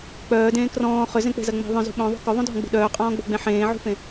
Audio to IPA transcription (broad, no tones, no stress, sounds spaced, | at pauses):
k͡p œː d ẽː k r ɔ̃ː χ ʏ z ẽ k͡p e̤ z ɐ ŋ͡m e̤ ðˤ œ̃ z ṳ ɓ œ̃ ðˤ ṳ k œ ðˤ ũ dʱ ɔ̃ ɡ͡b ṳ ɗ œː qʼ ɔ̃ː ɡ͡b o̤ ɡ͡b ẽ ħ ẽː ʕ ṳ f ẽ